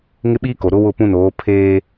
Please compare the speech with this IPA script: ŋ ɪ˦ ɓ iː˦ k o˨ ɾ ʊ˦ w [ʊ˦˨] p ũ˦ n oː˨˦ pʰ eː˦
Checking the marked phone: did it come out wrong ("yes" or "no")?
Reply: no